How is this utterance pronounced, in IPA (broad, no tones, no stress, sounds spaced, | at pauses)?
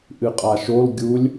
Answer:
ʔ ɨ qʼ a ʃ o l ɡʲ u lʲ